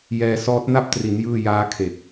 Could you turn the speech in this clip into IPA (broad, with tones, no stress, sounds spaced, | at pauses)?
j ɛː˧ s ɔː˦˥ t̚ n a˥˩ p̚ t r i˩˦ n j ɯː˥˩ j aː˦˥ kʰ e˨˩ k̚